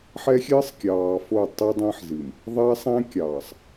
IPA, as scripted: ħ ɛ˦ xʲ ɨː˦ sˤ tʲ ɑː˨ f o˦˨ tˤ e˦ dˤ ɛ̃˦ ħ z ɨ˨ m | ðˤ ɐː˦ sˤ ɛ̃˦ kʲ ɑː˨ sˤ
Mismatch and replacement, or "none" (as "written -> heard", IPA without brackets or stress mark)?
tʲ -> kʲ